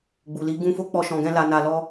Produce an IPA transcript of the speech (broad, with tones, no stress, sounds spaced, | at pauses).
ɡ͡b u˨ l i˨˦ ɡ ũ˦ f o˦ k͡p ɔ˦ ʃ ɔ̃˧ ɡ ɛ̃˦ l a˧ n a˧ l ɔ˦